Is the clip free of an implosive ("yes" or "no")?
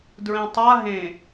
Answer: yes